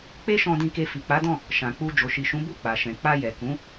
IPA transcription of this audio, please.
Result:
k͡pe˦ʃɔ̃˧dĩ˧ke˧ fi˨k͡pa˨˦dɔ̃˦˨ | ʃã˨k͡pu˧ d͡ʒo˨ʃi˨ʃũ˨˦ bu˦˨k͡pa˨ʃɛ̃˨ k͡pa˧jɛ˨kũ˨˦

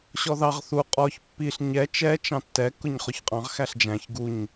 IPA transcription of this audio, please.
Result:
ɕɔðɑʁ θu qʼɔç pːiɬ ɲɛ t͡ʃɛ t͡ʃɑ̃tːɛ kʊɲχʊçqʼɑ̃ʁ xæɬd͡ʒæ̃ç ɡuɲ

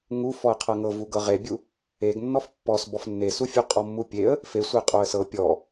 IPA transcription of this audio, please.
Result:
ŋuf ɔə̯qʰɤŋɤvu ɡɤʁebʲu | eɡnːɔf pːɔs bɔfnːesufʲu qʼɔmːupʲeə̯ | fesʷe qʼoə̯sɤ pʲɔ

